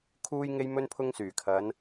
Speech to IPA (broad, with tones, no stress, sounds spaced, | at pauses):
kʰ uː˧ j ŋ e˧ j m ɵ˧ n pʰ ʊ˧ ŋ s yː˨˩ kʰ ɐ˨˧ n